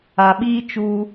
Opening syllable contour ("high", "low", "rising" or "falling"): low